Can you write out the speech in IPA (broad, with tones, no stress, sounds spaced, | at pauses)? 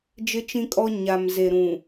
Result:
d͡ʒ ɪ˦ t͡ʃ ĩ˦ kʼ ɔ˦ ɲ a˨ m z e˨ ɾ ũ˨